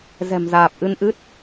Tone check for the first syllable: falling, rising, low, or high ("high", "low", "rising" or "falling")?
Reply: low